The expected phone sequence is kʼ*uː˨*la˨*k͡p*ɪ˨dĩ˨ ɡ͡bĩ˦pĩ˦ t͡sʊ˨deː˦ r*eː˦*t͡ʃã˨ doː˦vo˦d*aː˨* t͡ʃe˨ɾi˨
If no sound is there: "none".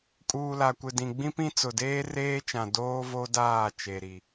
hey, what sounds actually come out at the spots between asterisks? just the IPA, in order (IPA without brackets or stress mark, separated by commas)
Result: uː˨, kʷ, eː˦, aː˦˨